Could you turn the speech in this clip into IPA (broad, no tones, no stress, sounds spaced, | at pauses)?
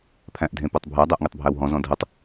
pʰ æ̃ ʔ dʱ ẽ p ɘ tˤ bʱ æ dˤ æ ʔ ŋ e tˤ bʱ æ w ɦ ɔ̃ z ɔ̃ dʱ ə tˤ